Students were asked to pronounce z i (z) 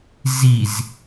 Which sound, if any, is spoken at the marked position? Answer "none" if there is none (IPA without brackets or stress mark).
z